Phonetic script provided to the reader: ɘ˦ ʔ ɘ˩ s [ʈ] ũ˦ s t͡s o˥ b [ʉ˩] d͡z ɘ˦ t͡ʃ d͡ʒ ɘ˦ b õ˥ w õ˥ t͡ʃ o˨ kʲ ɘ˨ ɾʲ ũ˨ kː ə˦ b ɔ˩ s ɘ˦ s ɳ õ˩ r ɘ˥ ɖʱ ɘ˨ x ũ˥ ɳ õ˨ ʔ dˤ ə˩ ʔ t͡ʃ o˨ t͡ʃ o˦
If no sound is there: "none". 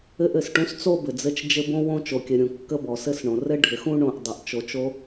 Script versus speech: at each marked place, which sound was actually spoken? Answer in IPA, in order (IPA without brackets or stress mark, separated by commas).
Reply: ʈ, ɘ˩